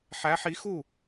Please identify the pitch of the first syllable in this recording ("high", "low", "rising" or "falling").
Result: rising